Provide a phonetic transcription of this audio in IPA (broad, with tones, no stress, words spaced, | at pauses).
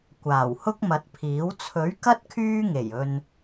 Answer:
kʷaː˨˩whʊ˥k̚mɐ˨˥t̚pʰiː˨˥w t͡sʰɵ˨˥ɥkɐ˥t̚ kʰyː˥ŋe˨˩j ɵ˧n